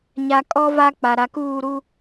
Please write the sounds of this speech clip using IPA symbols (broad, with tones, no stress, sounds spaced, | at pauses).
ɲ a˨ kʼ ɔ˦ v a˦ k͡p a˨ ɾ a˨ k uː˦˨ ɾ u˦